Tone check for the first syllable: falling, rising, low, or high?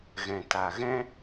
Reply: low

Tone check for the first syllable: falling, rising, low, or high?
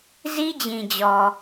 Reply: high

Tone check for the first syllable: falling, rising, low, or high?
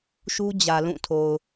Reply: high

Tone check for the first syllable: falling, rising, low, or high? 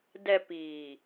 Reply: low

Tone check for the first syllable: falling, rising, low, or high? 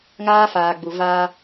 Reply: high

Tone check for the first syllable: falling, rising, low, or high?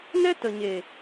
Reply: high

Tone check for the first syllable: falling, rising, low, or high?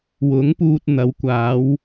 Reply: rising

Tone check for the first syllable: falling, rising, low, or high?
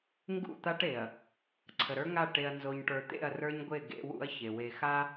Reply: falling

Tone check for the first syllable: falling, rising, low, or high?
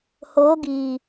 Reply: rising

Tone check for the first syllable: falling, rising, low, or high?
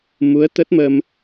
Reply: rising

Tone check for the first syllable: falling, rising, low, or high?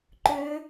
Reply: rising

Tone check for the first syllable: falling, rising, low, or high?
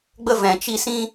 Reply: high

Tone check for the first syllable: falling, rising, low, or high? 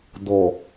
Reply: low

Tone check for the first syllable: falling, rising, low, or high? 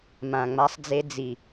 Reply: low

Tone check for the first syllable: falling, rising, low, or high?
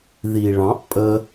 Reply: low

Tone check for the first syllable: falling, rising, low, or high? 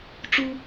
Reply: high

